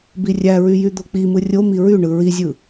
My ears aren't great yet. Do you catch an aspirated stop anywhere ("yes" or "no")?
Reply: no